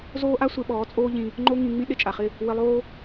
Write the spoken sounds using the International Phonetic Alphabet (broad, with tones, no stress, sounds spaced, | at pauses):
z oː˦ ʔ a˦ sʷ e˧ ɓ ɔː˨˦ t͡sʼ oː˦ ʎ ĩ˧ | ŋ͡ǃ o˦ ŋ ĩ˧ ŋ͡m ĩ˦ ɗ ɪ˦ t͡ʃʼ a˨ χ ɪ˦˨ | w ɪ˧ lˠ oː˦